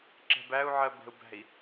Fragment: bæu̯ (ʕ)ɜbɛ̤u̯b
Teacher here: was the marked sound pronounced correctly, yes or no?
yes